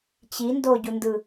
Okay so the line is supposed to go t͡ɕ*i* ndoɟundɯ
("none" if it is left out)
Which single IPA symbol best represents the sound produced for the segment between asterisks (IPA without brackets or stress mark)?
i